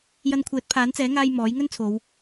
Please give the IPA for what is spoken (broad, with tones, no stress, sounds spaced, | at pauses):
j ɐ˧ n kʷʰ ɛː˨˥ t̚ pʰ aː˨˥ n t͡s ɛː˨˥ ŋ aː˧ j m ɔː˨˥ j ŋ ɵ˥ n t͡sʰ o˨˧ w